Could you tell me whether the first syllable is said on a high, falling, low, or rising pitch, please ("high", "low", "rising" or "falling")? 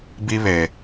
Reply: high